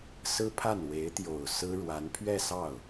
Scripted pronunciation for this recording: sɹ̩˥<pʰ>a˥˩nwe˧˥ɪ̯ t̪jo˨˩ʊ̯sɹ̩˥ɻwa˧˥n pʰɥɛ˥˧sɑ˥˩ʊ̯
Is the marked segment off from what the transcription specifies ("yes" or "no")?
no